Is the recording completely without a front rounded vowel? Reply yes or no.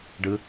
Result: yes